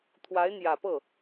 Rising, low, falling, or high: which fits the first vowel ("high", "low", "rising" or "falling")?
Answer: rising